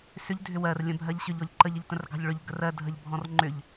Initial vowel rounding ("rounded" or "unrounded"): rounded